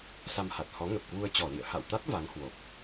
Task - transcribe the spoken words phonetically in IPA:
s a˧ m h a˨˩ t̚ h ɔ˨˦ ŋ ə˨˩ p̚ k w u˧ ə̯ t͡ɕ ɔ˧˩ l ḭ˧˨ ə̯ h a̰˧˨ w t̪ a˦˥ t̚ v a˨˦ ŋ h w o˨˩ p̚

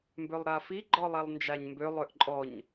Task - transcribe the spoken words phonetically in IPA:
m b ø lˠ ɾ a f i ɡ͡ǃ ɔ lˠ a lˠ n d͡ʒ a ɲ m b ø lˠ ø ʔ ǃʼ ɔ ɲ

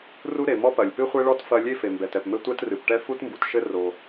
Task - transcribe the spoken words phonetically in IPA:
r u˥ ɾ e˩ m ɔ˥ p ɐ˩ lʲ p ɨ˥ χʷ e˥ ɭ ɔ˥ t f ɐ˥ lʲ e˥ f e˩ m b ɛ˩ t ɛ˩ p m ɘ˥ tʷ ɛ˥ t r ɨ˩ p ʈ ɛ˥ f u˥ t m b u˩ t ʃ ɘ˥ r o˩

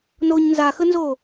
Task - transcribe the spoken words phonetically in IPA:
n oː ɲ n z a x ə n z oː

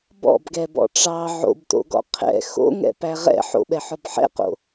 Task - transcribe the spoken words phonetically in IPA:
b ɔ̰ b ɡ ɛ b ɔ̰ ʈ͡ʂ ɑ ʕ o̰ b t o̰ ɡ ɔ̰ qʰ ɛ̰ x o̰ ŋ ɛ̰ p æ ʁ ɛ̰ ħ o̰ ɓ ɛ ħ ɔ b ħ ɛ̰ q o̰

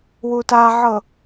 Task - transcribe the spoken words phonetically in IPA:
w u t a ʕ ɤ

